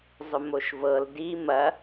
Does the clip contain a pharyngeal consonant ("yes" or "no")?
no